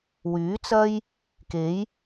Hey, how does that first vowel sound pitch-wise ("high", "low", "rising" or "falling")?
rising